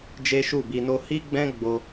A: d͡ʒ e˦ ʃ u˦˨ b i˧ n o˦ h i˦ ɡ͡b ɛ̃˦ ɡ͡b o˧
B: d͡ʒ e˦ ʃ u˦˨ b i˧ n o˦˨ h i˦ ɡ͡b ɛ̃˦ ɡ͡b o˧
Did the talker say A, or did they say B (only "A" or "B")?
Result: A